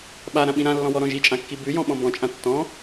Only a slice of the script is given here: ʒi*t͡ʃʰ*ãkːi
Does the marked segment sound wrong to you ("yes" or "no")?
yes